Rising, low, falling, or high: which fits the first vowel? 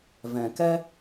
low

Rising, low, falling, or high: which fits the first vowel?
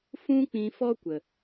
high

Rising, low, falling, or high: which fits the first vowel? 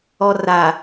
low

